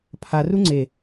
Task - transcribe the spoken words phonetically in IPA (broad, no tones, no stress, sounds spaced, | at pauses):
pʰ a r u ŋ͡ǀ e